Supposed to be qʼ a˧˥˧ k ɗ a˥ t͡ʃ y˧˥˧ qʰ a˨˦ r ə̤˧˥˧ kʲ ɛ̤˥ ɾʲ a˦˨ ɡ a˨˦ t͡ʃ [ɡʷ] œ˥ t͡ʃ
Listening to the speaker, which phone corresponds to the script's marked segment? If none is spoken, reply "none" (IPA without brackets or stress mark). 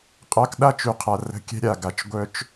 ɡʷ